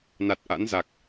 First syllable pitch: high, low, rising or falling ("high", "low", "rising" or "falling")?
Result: low